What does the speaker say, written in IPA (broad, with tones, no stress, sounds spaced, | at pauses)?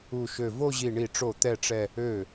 u˧˩ ʃ ø˧˩ v o˥˧ ʑ i˧˩ ɳ i˧˩ ʈ͡ʂ o˧˩ t̪ ɛ˥˧ ʈ͡ʂ ɛ˥˧ | ø˧˩